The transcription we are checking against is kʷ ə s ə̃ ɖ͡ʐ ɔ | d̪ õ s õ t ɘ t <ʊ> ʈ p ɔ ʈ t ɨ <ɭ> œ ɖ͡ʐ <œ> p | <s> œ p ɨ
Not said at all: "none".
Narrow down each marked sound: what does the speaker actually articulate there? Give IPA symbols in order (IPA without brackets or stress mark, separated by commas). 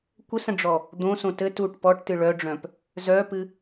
u, ɭ, œ̃, z